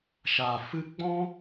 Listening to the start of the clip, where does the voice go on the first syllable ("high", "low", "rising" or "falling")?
low